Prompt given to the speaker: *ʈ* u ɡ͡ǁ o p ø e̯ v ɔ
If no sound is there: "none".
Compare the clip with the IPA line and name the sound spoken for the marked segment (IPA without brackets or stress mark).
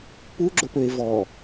p